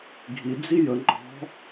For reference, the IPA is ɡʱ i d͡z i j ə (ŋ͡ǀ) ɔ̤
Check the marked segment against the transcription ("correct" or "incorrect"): incorrect